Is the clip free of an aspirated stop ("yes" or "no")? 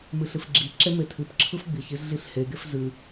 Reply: no